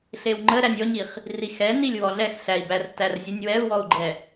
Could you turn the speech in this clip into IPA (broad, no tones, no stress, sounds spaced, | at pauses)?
ɬ e w ŋ͡ǃ ə ɾ æ nʲ ɔ ɲ i χ | r i x ɛ n i lʲ w ɔ ɮ ɛ x ɬ æ i̯ b æ r t æ r zʲ ə nʲ w ɛ u̯ w ɔ u̯ ɡ͡ǃ ɛ